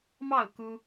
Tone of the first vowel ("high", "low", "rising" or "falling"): falling